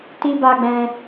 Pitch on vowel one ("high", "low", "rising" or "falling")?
high